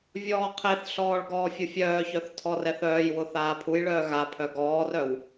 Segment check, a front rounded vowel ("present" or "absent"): present